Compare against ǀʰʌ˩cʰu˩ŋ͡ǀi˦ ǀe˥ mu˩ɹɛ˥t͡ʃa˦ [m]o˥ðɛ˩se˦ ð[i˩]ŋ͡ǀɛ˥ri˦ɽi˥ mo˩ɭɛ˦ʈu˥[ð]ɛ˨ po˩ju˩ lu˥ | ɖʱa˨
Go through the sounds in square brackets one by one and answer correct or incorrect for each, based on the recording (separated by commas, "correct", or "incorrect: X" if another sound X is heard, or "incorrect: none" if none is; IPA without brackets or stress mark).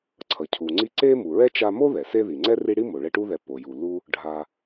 correct, correct, correct